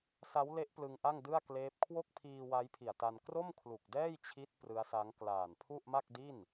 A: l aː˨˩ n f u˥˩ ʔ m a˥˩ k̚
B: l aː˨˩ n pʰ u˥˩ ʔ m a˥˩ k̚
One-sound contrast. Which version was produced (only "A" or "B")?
B